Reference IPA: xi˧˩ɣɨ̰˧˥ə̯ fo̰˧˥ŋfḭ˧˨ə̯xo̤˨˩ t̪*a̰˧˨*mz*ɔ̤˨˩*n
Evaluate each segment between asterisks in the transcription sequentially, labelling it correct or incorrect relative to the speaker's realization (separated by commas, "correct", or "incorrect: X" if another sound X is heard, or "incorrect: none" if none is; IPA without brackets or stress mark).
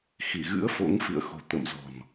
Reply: incorrect: ə̰˧˨, correct